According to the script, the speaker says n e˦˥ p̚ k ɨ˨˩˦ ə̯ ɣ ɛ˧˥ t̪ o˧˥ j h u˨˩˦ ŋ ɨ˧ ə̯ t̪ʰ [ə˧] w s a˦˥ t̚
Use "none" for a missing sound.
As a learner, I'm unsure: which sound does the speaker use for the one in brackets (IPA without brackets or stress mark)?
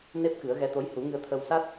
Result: ə˧